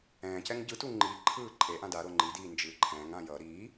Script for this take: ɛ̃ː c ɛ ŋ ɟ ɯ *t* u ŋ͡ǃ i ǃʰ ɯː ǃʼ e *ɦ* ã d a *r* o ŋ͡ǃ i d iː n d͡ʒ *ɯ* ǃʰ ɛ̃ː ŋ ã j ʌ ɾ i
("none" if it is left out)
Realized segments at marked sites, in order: t, ʔ, ɾ, ɯː

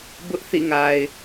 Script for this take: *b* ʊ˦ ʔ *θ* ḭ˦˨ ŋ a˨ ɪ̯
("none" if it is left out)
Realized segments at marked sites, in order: b, θ

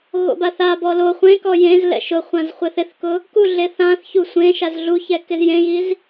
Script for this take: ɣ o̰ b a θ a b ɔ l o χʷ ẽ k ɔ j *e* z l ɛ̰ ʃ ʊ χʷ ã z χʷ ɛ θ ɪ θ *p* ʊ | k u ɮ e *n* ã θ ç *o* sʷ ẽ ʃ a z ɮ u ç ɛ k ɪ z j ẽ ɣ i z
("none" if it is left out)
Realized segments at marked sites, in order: ẽ, k, θ, u

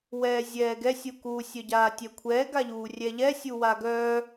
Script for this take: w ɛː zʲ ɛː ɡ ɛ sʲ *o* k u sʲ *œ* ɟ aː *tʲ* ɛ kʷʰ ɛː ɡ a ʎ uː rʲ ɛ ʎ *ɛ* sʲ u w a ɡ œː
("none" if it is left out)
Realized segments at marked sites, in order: u, œ, tʲ, ɛ

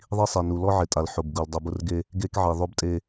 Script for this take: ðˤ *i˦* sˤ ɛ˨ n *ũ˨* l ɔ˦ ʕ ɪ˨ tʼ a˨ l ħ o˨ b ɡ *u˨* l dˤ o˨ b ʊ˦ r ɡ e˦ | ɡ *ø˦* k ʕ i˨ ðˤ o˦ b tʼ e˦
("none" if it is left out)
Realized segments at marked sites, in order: i˦, u˨, u˨, e˦

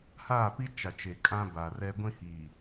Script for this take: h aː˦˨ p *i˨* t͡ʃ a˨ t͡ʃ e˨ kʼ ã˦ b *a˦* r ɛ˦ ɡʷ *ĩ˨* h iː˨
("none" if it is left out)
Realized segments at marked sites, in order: i˦, a˨, ĩ˦

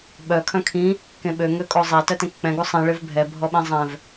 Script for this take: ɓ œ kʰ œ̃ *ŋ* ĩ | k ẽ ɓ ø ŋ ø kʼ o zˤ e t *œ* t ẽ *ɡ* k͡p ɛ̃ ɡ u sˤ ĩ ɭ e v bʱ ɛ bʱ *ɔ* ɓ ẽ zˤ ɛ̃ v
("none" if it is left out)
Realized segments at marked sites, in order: kʰ, œ, k, ɔ

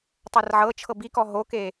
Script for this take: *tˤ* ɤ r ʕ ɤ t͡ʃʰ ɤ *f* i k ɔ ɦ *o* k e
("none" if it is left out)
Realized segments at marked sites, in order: tˤ, b, o

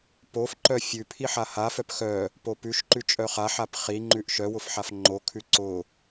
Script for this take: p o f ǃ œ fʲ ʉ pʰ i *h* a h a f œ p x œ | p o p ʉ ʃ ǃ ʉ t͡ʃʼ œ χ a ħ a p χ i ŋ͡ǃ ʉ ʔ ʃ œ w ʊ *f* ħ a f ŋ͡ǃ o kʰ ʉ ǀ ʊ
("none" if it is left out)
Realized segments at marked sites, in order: ħ, f

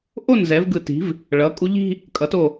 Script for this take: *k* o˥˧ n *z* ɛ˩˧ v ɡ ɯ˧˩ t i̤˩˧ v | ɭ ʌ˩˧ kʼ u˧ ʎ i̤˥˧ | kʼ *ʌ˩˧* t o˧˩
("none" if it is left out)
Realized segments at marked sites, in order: ʔ, z, ʌ˩˧

